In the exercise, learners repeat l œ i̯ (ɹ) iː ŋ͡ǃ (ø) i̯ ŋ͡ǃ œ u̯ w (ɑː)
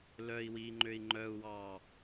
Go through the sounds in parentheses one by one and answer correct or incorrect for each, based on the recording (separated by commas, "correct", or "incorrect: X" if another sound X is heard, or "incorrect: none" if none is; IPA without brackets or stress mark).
incorrect: w, correct, correct